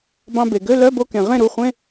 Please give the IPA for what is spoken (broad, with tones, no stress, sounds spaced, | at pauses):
b ɑ̃˧ b e˩ ɡ ø˧˥˧ l œ˧˥˧ b o˧ k ẽ˩ ʁ ẽ˥˩ ɾ u˩˧˩ χʷ ẽ˧˥˧